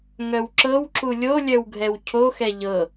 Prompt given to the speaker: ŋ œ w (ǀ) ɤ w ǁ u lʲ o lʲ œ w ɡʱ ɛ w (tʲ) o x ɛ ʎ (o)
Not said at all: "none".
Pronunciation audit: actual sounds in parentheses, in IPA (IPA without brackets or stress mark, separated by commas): ǁ, cʰ, ɤ